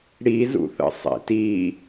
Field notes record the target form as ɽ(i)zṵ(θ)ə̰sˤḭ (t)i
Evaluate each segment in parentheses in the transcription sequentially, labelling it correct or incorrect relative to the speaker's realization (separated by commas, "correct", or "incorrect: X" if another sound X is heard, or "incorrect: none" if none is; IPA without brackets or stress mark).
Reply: correct, correct, correct